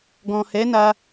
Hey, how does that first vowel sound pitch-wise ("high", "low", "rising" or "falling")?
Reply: low